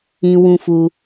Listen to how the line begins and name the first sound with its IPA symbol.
ĩ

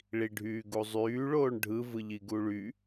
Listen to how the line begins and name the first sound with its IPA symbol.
ɭ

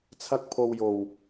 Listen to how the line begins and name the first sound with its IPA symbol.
t͡sʰ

